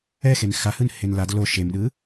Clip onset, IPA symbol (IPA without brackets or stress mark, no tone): ɛ